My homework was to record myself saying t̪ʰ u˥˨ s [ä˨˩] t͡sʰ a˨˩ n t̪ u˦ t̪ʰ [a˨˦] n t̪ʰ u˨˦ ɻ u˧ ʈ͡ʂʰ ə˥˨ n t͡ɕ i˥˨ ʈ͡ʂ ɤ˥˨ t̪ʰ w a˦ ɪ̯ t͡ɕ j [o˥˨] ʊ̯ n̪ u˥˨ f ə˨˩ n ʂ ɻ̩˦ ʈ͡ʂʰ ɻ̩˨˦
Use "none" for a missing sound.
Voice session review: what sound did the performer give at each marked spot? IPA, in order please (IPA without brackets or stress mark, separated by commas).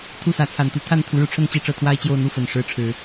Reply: ä˨˦, a˥˨, o˥˨